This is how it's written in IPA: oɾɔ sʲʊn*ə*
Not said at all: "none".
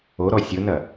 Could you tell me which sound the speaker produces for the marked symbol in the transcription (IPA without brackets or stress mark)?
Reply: ɐ